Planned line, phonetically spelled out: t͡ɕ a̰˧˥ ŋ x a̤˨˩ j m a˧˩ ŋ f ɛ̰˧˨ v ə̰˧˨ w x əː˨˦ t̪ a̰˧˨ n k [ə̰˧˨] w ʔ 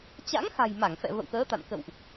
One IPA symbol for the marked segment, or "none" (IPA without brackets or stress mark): ə̰˧˨